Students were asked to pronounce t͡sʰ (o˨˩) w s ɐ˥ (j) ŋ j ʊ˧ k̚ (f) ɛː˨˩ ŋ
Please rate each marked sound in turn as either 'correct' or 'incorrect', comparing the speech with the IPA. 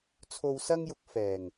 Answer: incorrect, incorrect, correct

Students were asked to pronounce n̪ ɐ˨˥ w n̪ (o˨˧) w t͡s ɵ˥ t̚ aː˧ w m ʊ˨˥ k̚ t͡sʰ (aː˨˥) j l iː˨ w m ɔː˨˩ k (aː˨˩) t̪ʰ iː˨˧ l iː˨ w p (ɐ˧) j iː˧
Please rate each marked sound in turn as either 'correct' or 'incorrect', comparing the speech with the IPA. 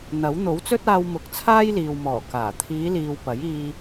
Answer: incorrect, incorrect, correct, incorrect

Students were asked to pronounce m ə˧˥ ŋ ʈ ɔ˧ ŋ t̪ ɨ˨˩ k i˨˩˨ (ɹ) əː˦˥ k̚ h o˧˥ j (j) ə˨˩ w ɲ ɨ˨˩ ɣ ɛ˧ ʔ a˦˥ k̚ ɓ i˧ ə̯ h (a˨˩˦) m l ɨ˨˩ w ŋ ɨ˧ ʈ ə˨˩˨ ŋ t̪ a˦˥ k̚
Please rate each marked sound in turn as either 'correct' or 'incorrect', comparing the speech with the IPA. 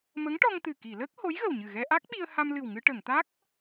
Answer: incorrect, incorrect, incorrect

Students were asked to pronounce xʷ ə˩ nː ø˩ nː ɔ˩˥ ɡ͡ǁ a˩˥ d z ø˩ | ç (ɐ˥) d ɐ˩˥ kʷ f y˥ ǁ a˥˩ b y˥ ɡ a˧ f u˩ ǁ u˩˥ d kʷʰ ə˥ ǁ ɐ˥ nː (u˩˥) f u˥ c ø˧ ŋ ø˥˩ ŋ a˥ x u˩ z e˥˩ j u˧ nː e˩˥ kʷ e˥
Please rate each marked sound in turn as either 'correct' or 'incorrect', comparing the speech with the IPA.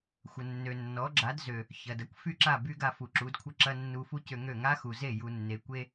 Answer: incorrect, incorrect

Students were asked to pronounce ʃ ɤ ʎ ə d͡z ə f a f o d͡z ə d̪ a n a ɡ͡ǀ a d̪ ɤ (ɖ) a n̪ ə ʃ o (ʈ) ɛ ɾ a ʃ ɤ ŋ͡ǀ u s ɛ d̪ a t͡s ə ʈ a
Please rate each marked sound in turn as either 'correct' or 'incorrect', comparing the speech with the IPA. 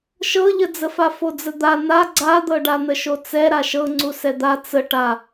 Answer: correct, incorrect

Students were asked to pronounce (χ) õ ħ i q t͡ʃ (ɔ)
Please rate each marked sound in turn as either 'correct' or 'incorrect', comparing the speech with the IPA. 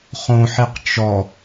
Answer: correct, correct

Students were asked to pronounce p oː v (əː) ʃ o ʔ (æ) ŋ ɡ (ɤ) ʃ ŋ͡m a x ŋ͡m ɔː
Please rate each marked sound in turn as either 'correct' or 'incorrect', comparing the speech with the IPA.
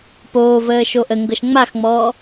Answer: correct, incorrect, correct

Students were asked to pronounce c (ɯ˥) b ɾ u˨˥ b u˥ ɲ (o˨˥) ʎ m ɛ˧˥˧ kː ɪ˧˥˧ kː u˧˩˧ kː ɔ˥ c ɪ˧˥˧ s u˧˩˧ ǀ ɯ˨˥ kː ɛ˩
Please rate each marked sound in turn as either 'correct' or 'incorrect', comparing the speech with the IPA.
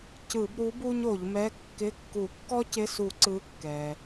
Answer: incorrect, incorrect

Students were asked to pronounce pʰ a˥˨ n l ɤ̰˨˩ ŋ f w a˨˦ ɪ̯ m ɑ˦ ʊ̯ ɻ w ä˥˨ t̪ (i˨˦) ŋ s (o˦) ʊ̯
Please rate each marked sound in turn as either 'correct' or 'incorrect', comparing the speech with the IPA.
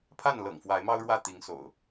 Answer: correct, incorrect

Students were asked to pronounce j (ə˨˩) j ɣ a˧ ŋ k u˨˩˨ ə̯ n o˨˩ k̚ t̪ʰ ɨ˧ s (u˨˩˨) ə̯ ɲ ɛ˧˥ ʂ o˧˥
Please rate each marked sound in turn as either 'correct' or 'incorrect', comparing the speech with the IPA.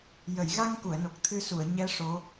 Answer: incorrect, correct

